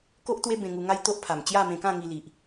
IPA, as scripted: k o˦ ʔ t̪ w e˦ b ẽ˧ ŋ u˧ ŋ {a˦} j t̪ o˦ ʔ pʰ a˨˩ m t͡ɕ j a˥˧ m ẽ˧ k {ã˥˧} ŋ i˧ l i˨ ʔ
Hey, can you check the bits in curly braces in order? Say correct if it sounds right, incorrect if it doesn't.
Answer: correct, correct

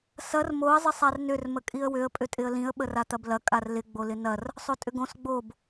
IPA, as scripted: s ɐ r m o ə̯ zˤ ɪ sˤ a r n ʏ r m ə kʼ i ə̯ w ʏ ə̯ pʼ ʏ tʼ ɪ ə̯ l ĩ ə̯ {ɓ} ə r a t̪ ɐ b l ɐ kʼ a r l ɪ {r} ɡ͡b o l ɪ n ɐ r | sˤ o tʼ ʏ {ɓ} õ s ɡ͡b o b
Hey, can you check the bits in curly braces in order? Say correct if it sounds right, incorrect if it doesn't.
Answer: correct, incorrect: none, incorrect: ɡ

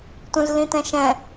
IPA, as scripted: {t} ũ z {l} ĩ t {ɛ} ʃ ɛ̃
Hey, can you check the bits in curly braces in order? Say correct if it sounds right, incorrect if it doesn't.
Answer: correct, correct, incorrect: ɛ̃

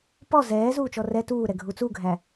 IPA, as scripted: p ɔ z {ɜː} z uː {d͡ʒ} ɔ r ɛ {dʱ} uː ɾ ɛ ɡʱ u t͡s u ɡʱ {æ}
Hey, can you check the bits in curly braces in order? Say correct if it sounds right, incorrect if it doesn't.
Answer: incorrect: ɛː, incorrect: t͡ʃ, incorrect: t, correct

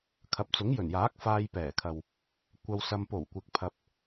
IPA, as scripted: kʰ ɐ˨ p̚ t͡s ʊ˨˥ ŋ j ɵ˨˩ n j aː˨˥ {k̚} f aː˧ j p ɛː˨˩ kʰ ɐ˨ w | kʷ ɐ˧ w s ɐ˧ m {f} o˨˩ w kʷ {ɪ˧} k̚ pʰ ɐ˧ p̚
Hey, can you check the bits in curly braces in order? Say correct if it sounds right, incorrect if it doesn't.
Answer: correct, incorrect: p, incorrect: ɪ˨

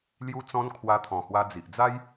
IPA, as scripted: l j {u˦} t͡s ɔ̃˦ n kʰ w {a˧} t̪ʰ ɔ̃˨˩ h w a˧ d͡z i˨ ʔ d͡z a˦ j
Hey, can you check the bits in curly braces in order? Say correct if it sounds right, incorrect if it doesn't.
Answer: correct, correct

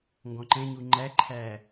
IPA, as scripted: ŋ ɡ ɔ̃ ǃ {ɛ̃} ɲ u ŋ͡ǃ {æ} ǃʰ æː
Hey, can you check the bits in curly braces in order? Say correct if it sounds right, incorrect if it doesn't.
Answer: correct, correct

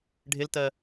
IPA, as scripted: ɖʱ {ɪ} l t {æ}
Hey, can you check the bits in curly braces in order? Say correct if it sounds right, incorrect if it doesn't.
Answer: correct, incorrect: ɜ

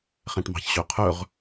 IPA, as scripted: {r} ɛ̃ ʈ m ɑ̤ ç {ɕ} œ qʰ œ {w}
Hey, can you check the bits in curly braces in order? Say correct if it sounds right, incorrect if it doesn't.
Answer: incorrect: χ, correct, incorrect: ʁ

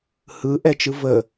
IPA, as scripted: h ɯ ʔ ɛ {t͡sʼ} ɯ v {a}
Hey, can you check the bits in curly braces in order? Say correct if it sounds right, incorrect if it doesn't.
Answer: incorrect: t͡ʃ, incorrect: ə

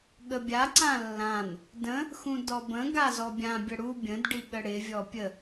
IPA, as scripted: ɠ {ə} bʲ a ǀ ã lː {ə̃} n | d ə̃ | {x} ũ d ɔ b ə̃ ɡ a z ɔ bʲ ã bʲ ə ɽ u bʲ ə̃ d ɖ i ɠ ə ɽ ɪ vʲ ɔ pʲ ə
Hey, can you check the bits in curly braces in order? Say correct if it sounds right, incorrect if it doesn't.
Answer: correct, incorrect: ã, correct

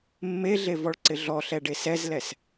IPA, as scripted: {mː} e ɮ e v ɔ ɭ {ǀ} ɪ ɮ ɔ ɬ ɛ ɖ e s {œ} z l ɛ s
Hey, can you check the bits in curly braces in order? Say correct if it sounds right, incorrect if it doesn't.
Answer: correct, correct, incorrect: ɛ

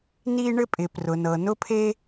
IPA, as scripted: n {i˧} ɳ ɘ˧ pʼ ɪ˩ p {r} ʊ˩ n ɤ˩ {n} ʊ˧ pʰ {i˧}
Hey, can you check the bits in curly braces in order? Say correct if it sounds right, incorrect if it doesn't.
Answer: correct, correct, correct, incorrect: e˧

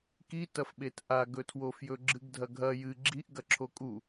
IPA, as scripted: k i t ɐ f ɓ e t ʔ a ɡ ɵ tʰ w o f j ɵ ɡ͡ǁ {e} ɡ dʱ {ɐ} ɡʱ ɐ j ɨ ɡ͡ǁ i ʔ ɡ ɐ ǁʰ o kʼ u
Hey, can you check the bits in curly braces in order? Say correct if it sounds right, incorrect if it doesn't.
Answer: incorrect: ɨ, correct

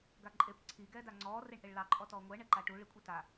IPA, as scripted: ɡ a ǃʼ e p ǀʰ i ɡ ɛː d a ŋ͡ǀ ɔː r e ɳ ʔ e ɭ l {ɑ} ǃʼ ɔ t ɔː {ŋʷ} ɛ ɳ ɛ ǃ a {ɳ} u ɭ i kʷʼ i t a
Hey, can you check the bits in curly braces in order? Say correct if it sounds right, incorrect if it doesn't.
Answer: correct, correct, incorrect: ʈ

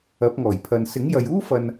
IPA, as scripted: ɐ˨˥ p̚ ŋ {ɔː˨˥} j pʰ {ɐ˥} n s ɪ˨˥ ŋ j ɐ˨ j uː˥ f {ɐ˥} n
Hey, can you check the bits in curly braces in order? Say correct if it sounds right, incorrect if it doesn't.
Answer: incorrect: ɔː˨˩, incorrect: ɐ˨, incorrect: ɐ˨

